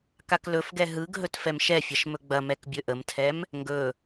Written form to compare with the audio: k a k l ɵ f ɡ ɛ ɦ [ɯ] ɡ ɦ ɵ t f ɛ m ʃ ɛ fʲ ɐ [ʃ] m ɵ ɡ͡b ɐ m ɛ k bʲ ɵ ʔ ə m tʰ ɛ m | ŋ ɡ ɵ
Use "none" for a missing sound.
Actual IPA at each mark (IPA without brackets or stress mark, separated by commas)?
ɯ, ʃ